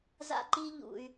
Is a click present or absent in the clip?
present